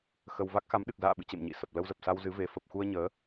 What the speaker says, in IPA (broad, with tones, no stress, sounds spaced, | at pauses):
x ə˧ w v a˦˥ k̚ x a˨˦ m ɗ ɨ˨˩ k̚ z a̰ː˧˨ ɓ ɨ̰˧˨ t͡ɕ ḛ˧˨ m ɲ ḭ˧˨ s ə˨˩ p̚ l ə˧ w z ə˨˩ p̚ s a˧ w z ɨ˨˦ v e˨˦ f ə˨˩ p̚ x u˧ ə̯ ɲ əː˨˦